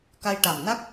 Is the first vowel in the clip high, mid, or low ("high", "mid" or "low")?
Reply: low